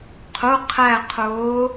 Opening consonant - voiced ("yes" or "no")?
no